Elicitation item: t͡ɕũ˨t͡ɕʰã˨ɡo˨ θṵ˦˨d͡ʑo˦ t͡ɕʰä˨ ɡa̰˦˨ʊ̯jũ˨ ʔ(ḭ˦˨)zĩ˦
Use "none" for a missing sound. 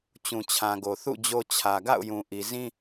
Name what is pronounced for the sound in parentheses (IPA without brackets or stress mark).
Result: i˨